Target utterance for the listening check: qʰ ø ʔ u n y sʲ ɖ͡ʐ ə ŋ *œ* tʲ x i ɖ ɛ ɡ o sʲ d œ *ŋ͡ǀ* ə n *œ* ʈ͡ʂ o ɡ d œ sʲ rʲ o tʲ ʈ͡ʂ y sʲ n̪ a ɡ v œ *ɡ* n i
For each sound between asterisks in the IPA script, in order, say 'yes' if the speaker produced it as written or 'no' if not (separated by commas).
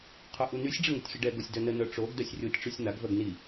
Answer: no, no, yes, yes